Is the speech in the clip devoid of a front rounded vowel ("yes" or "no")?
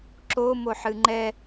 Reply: yes